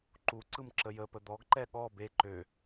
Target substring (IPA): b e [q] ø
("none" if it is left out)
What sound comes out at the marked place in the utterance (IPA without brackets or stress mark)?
ǃ